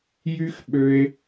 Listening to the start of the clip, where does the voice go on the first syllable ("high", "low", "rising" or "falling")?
high